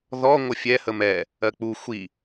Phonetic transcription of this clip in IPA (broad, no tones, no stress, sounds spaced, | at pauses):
ð ɔ ŋʷ ə fʲ ɛ h ə m ɛ | ɜ k͡p u xʷ i